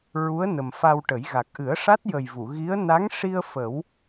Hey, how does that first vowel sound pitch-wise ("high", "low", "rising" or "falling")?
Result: rising